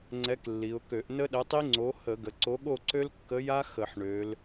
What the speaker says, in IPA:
ŋ͡ǀɛ˨˥klːi˩˧ʊ̯kø˧˩˧ʔ nə˦˥ɗə˨˥tˤi˦˥ ŋ͡ǀo˨˥ hə˧˩˧ ɡə˩˧ǀo˨˥ɠo˥˨ǀø˦˥l kːə˨˥ja˦˥ xə˧˩˧ħɳø˩˧l

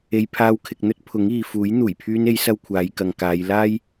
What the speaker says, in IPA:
e˧jpʰaː˧wkʰɪ˨k̚n̪ɵ˥t̚ pʰʊ˨˥ŋiː˨fuː˨˥j n̪uː˨˩jpʰyː˧ne˨˧j sɐ˥wkʷʰaː˨˧jkɐ˨ŋkaː˨˧j laː˥j

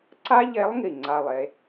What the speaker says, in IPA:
ǀa˥ʎe˧˥lˠŋi˨˩ ŋ͡ǀa˨˩lˠ e˩˧

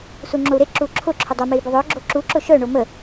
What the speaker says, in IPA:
suŋ͡ǁou̯ɾe ǁuǁʰʊ ǁʰʊdˤɐ mei̯bʊðˤœ ɡ͡ǁoǁu ǁʊʃœ ɳomə

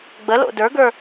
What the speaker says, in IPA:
ɡ͡bəlo̰ də˞ɡə˞

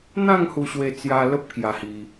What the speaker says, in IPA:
n̪ã˥˧ŋ hu˧ɕwe˧t͡sja˧ lə˦p̚kja˧hi˧

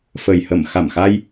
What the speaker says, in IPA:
fə˨˩jhə˧˩m xa˧˩mxa˧j

